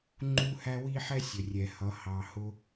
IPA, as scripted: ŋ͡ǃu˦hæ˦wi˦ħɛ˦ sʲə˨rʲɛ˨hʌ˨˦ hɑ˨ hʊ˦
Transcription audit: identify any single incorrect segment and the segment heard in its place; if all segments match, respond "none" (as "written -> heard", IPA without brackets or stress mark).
none